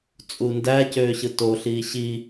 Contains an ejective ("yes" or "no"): yes